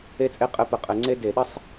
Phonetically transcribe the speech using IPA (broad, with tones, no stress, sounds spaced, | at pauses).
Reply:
e˥ t͡sʼ e˥ qʼ ɘ˧˥˧ p ə˧˩˧ qʼ ɘ˧˩˧ ŋ͡ǀ e˥ d e˧˩˧ ɗ ɘ˥ sˤ